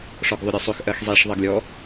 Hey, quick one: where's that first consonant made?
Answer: retroflex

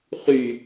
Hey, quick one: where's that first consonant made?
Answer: uvula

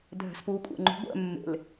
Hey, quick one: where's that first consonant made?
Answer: tongue tip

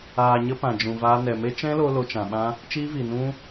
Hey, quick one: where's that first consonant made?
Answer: palate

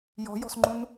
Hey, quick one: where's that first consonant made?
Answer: palate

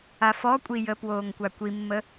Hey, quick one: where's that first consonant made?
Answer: lips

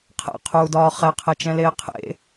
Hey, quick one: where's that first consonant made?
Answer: uvula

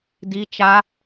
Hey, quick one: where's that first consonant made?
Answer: tongue tip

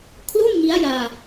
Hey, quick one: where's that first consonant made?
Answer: velum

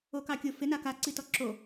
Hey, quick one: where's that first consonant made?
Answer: velum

